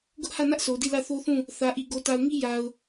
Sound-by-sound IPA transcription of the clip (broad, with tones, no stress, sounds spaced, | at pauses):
ɡ ʊ˦ ʔ h ä˦˨ n ä˦ ʔ s o˨ d i˦˨ l ä˦˨ θ o˦ θ ũ˦˨ | θ ä˨ ʔ i˨ ɡ o˨ t a˨ ʊ̯ ŋ i˦ j a˨ ʊ̯